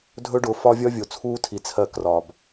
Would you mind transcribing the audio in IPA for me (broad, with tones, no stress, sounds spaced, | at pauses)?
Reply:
dʱ ɵ˦ ɖ ʊː˧ f ɒ˦ vʲ ɒ˦ vʲ o˨ t͡sʰ uː˦ tʰ i˧ t͡sʰ ɜ˦˨ k r ɒ˨ b